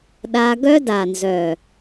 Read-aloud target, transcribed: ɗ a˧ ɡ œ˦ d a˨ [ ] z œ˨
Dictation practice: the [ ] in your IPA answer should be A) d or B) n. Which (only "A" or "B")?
B